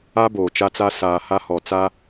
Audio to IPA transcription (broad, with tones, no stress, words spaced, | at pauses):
a˦ boː˨t͡ʃa˦t͡sa˦ saː˨ ha˦hɔ˨ t͡sa˦